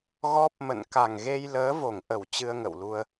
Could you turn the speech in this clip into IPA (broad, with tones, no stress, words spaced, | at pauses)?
ɣɔ˦˥p̚mə̰˧˨n ka˨˩ŋɣe˧j ləː˨˦vo˧˩ŋʔə˧˩w t͡ɕɨ˧ə̯ŋə̰˧˨wlu˧ə̯